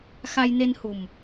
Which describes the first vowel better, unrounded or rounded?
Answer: unrounded